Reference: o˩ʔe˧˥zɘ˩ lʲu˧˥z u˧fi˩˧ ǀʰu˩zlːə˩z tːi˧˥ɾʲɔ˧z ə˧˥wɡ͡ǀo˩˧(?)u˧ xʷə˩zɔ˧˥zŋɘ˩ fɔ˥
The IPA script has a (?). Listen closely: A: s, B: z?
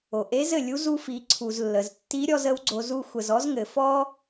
B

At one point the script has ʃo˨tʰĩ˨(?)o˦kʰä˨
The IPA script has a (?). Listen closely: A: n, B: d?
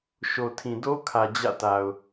B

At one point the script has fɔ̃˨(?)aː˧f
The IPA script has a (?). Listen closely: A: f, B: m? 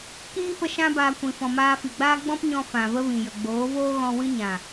B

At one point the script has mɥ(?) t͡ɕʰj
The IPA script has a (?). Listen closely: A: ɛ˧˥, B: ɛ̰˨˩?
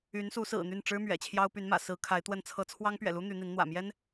B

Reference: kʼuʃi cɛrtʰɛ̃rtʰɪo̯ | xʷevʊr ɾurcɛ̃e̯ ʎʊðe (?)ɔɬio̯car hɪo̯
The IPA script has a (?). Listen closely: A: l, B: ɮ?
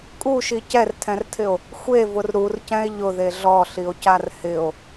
B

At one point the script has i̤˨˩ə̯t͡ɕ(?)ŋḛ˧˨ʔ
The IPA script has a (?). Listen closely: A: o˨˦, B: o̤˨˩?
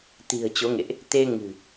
A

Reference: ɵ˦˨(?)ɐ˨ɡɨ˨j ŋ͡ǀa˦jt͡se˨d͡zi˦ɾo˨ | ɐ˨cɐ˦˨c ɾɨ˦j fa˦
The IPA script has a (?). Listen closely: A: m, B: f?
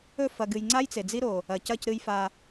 B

